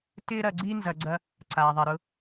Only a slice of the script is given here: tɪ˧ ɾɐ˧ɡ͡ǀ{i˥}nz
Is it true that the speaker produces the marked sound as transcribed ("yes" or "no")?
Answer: yes